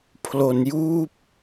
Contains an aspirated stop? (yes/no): yes